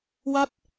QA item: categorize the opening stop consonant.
plain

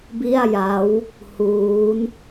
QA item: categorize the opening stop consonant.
plain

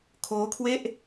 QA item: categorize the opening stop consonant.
aspirated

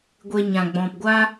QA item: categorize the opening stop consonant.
plain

